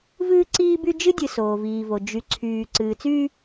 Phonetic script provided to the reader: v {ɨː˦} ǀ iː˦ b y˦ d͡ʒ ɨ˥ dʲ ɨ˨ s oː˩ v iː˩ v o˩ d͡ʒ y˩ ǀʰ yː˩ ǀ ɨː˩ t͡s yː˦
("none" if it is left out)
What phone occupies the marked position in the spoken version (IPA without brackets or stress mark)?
ɨː˦